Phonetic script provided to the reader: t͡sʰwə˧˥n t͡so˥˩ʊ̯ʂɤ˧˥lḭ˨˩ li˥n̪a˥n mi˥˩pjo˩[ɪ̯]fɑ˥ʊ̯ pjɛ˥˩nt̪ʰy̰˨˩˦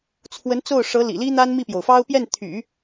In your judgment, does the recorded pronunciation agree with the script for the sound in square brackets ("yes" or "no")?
no